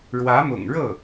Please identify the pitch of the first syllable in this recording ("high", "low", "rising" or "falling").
rising